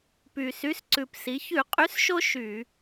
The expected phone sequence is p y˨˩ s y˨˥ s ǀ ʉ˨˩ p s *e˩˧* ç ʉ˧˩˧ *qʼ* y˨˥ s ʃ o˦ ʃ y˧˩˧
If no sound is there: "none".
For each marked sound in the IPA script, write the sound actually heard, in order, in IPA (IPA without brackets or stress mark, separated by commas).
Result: i˩˧, qʼ